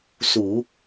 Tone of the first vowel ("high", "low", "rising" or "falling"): low